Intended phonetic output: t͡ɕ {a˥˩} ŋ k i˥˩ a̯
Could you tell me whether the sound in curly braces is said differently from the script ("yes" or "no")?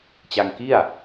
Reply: yes